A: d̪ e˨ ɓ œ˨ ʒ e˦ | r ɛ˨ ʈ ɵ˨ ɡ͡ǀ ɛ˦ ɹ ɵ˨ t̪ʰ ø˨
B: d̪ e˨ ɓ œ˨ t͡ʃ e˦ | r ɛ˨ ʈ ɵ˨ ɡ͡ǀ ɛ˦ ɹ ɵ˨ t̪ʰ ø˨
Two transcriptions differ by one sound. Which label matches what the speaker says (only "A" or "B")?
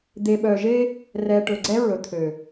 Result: A